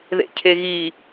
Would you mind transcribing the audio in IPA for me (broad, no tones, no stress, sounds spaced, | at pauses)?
ð ḛ cʰ e ɣ i